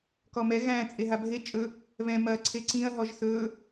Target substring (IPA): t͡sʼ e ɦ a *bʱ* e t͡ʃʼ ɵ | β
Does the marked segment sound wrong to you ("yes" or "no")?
no